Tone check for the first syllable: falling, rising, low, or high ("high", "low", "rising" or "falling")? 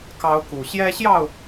high